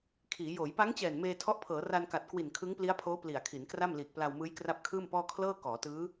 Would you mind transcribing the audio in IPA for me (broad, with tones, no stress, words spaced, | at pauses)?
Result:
kʰiː˩˦ joː˩˦jpa˦˥ŋt͡ɕɛː˨˩n meː˧tʰɔ˦˥ʔpʰɤː˩˦ ra˧nka˨˩t̚kwi˨˩n kʰɯ˦˥ŋpli˦˥a̯pʰoː˦˥ pli˨˩a̯kʰi˩˦nkra˥˩m liː˨˩k̚pla˧wmɯː˦˥j kra˦˥p̚kʰɯː˥˩mpɔː˥˩ kʰlɤː˥˩ kɔː˩˦tɯː˦˥